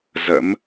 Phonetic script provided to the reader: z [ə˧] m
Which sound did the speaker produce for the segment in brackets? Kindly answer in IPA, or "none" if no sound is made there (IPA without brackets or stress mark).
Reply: ə̰˧˥